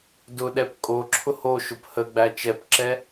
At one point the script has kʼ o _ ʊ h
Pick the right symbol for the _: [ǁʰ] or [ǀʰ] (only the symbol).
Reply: ǁʰ